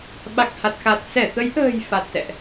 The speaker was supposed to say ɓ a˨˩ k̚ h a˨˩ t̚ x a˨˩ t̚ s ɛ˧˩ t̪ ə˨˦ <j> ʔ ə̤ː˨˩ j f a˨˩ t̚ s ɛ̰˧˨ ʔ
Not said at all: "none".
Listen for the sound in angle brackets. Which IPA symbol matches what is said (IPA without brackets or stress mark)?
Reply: j